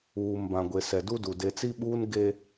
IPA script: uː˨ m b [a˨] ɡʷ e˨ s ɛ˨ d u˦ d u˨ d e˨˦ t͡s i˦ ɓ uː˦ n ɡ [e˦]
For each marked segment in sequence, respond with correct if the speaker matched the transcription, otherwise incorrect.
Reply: incorrect: ã˨, correct

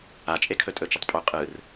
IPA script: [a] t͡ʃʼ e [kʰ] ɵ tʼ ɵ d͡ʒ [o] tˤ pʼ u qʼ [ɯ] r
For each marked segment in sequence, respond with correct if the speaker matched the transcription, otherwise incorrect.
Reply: correct, correct, incorrect: ɵ, correct

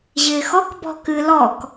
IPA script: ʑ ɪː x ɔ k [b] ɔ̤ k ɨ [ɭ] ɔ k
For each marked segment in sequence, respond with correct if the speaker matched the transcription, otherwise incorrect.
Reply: correct, incorrect: l

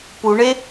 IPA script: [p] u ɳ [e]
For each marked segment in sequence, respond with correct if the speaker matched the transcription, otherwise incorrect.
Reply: correct, correct

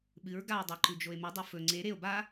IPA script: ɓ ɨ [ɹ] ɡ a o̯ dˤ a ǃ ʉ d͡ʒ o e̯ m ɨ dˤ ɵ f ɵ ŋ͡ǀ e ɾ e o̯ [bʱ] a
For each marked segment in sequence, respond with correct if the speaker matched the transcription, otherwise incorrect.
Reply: correct, incorrect: b

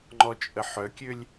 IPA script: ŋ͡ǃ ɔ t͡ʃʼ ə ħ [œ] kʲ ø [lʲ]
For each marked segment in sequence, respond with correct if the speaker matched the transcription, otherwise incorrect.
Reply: correct, correct

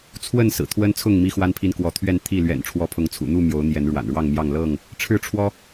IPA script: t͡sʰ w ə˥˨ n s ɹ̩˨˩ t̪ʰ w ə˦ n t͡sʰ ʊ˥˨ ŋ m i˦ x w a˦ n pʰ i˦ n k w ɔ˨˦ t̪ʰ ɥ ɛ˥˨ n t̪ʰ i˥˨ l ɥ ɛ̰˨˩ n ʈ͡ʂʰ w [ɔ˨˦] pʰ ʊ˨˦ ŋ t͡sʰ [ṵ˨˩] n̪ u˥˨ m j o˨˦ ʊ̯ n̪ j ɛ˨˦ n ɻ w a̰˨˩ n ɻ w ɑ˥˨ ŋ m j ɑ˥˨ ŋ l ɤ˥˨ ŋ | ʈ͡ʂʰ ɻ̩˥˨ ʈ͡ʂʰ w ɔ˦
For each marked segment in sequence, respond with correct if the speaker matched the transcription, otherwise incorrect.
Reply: correct, correct

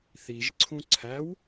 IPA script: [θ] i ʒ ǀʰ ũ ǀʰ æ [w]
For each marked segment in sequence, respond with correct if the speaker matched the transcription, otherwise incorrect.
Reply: correct, correct

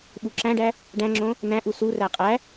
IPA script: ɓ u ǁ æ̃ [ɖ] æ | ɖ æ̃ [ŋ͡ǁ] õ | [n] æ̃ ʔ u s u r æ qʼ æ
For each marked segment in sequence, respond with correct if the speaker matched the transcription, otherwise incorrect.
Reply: correct, correct, correct

